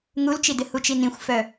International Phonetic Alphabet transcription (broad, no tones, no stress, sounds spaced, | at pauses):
ŋ u l t͡ʃ i d ɪ h u t͡ʃ i n ĩ xʷ f œ